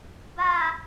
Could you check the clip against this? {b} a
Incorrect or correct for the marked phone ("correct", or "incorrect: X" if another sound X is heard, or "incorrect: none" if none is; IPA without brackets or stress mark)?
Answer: correct